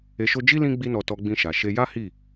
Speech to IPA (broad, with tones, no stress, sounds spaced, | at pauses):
e˧ ʃ o˧ d͡ʒ i˦ l ĩ˦ ɡ͡b i˦ n ɔ˧ t ɔ˧ ɡ͡b ĩ˧ ʃ a˨ ʃ e˧ j a˦ h i˦˨